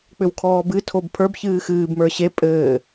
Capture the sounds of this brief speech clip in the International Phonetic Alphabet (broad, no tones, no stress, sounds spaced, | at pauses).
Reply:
k͡p ʏ w kʰ ɔː b ɨ tʰ o b pʰ ə˞ b ç ɨː x ɨː b m ə˞ ɕ e pʼ ɘː